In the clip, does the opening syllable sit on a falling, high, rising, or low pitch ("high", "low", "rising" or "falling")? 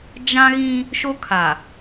high